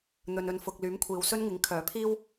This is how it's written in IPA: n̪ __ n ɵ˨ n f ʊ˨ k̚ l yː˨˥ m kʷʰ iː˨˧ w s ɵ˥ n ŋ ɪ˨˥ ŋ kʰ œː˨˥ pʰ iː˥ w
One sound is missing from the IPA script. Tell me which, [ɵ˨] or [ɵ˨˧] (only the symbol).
ɵ˨